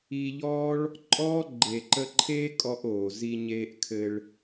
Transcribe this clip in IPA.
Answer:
iː˧ ʎ ɔː˦ ɭ | ǃʼ ɔː˦ ɡ͡ǃ e˨ ǃ ə˧ ǃʰ eː˦ kʼ ɔ˧ ʔ oː˨ z i˧ ɲ eː˧ ʔ kʰ ɘ˧ ɭ

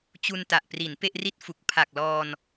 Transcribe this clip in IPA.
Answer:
t͡ɕ u˧ n t a˨˩ ʔ p r i˩˦ n p e˥˩ ʔ r i˥˩ t̚ f u˨˩ k̚ pʰ a˨˩ k̚ l ɔː˧ n

